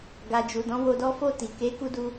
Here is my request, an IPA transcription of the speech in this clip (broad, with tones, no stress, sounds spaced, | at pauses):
ɡ a˨ d͡ʒ u˨ d ɔ̃˨˦ w o˧ d ɔ˦ f o˦˨ t i˨ k e˨˦ k u˦ d u˦